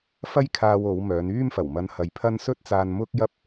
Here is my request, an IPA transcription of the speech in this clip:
fɐ˥jkʰaː˧w o˨˧wmœː˨˧n yː˥m fɐ˨˩wmɐ˧nhɐ˨˧jpʰɐ˥n sɵ˥t̚t͡saː˧nmʊ˥k̚jɐ˥p̚

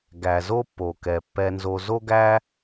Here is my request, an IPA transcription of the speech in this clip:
ɡæ˩ zo˦pːo˩kɛ˩ pːɛ˨nzo˨ zo˦ɡæ˦

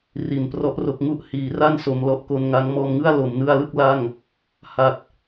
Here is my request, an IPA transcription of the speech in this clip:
ri˨˩nprɔ˦˥ʔro˦˥k̚ ŋu˦˥ʔ hiː˩˦ra˥˩nso˩˦m lɔ˨˩ʔko˧nŋa˦˥ŋ mɔː˧mŋɯ˥˩a̯ lo˩˦mnɯ˧a̯lɯ˥˩k̚ la˥˩ŋ | ha˨˩t̚

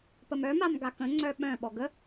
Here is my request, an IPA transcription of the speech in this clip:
pəmœmam ɡakə̃ ŋ͡ǀœɓœ̃ ɓɔɡə

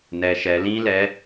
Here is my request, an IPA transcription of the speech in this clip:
nɛ˧ʃɛ˧ lĩ˦lɛ˧

